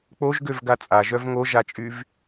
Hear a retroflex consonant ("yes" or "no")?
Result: no